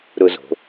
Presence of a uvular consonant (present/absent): absent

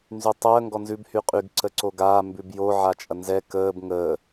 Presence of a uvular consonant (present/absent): present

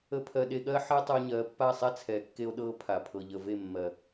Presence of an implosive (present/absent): present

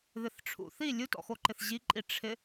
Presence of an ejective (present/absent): present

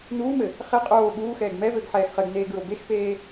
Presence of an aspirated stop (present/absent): absent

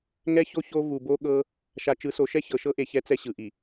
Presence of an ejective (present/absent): absent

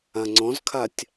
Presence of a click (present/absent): present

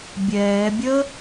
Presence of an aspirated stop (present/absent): absent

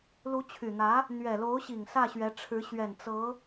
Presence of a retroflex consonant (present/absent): present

